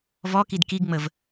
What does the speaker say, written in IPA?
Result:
v ɔ k i d k i ɡ ŋ͡m ə v

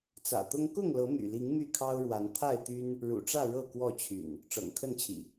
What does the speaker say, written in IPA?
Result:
t͡s ä̰˨˩ t̪ ʊ˦ ŋ k ʊ˥˨ ŋ l ɤ˨˦ m y̰˨˩ l i˨˦ ŋ m y˥˨ kʰ ɑ˦ ʊ̯ ɻ w a˨˦ n t̪ʰ a˥˨ ɪ̯ t̪ y˦ n | ɻ ṵ˨˩ ʈ͡ʂ ä˥˨ ɻ ɤ˥˨ k w ɔ˥˨ t͡ɕʰ y̰˨˩ n | ʈ͡ʂ ɤ̰˨˩ ŋ kʰ ə˥˨ n t͡ɕʰ ḭ˨˩

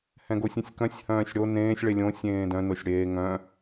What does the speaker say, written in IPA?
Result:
h ɛ̃ ɡ o sʲ ẽ sʲ k œ̃ sʲ h œ̃ː sʲ ɽ o n ẽː sʲ ɭ e lʲ õ sʲ ẽː d œ̃ n o sʲ ɽ eː ŋ œ̃

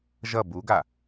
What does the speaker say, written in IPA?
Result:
ʒ ʌ b u ɡ a

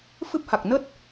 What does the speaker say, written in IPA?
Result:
f ɨ˦˥ p̚ h a˨˩ k̚ n ə˦˥ t̚

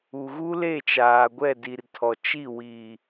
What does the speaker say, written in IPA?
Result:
u˨ ɣ u˦ l e˦˨ t͡ʃ aː˨ ɡʷ ɛ˦˨ d i˨ r tʰ ɔ˨ t͡ʃ i˦˨ w i˨

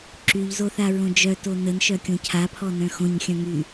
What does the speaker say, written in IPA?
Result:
ǁ y ʎ z o θ a ɹ õ d͡ʒ œ t o n ə n ʃ œ kʲ õ cʰ a pʰ ɔ n œ̃ x õ ɲ xʲ œ̃ ŋ y

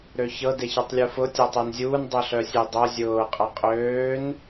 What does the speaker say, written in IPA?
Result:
ɾ ø ç ɤ d e ç ɤ tˤ lʲ u f ʊ tʲ ɔ tˤ ø n zʲ uː n dˤ ø ɬ œ sʲ e dˤ o zʲ ʊː qʼ ɤ qʼ øː n

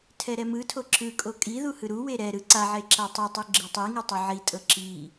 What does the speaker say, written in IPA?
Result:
tʰ ɛ ɾ ɛ m ɯ tʰ o ǁ ɯ kʼ o kʼ i ð u h ɯ ɾ u w e ɾ ɛ ɾ ɯ ǀ a ʕ e ǁ a tˤ o tˤ i ɡ͡ǁ ɤ tˤ i ŋ u tˤ o ʕ i tʼ ɤ ǁ i

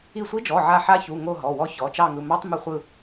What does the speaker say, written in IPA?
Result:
i˦˨ sʷ i˦˥ d͡ʒ ɔ˩˧˩ ʕ a˦˨ ħ a˦˥ ç u˩˧˩ ŋ o˦˨ ɦ ɔ˩˧˩ w ɔ˦˥ ç ɔ˩˧˩ t͡ʃ ɑ˦˨ ŋ ɯ˩˧˩ m ɑ˦˥ tˤ m ɘ˦˨ χʷ ɯ˦˨

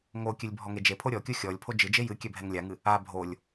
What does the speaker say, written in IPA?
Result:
ŋ o kʲ ɨ lʲ bʱ ɔ ŋ e d͡ʒ e pʰ o ɾʲ ɔ kʲ o xʲ ɔ lʲ pʰ o d͡ʒ ɨ d͡ʒ e j ɨ kʲ ɛ bʱ ɛ ŋ lʲ a ŋ ɨ | a bʱ o lʲ

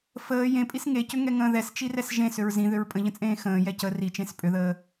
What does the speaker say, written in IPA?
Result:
f əː j ẽ pʼ i s ŋ e c ʏ ŋ ɛ ŋ ə̃ː ð ɛ s t͡ʃ i r ɛ s ʒ ẽ s ʏ ɹ z ĩ ð ʏ ɹ pʼ ə̃ ʎ ə̃ t͡sʼ ẽː x ə̃ː j ɛ c ə r i t͡ʃ ẽ s pʼ ʏ ð əː

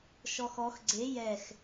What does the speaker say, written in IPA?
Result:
ʃ ɔ x ɔ x ɡ͡ǀ e j ɛ x

